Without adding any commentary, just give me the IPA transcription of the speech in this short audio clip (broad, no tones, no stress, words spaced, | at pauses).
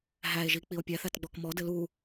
ɦæe̯ʒi k͡pio̯pʲæθæt ɡ͡bɔkmɔ dɘlu